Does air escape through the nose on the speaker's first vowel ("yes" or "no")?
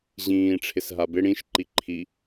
yes